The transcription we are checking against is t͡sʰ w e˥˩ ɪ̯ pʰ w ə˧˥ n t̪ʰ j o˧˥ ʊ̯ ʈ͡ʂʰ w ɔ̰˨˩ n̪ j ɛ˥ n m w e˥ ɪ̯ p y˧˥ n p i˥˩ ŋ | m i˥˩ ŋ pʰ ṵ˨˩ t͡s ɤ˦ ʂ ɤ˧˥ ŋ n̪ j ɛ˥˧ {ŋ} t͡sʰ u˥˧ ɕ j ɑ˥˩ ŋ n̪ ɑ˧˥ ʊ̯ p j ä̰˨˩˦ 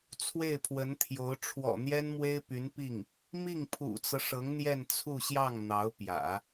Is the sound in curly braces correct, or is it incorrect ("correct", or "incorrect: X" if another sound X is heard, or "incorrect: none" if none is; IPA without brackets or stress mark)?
incorrect: n